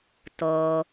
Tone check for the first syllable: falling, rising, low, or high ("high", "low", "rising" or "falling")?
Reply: low